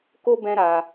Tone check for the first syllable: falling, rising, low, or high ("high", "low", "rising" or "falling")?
high